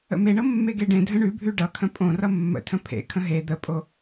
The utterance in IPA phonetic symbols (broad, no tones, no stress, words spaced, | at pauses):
ə̰meɳɤ mːeɡeɖẽdʱə̃ ɳʉbʱʉ ɖʌ kʰə̃pʼõrʌ mːə̰tʰə̃ pʰḛkʰə̃ ɦe d̪əpʼo